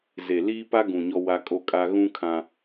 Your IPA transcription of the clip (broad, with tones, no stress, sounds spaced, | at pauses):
z e˨ l iː˦ p a˦ ɡ ũ˨ ɲ ɔ˦ w a˦ kʼ o˦ kʼ a˦ ɣ ũ˦ kʰ ã˦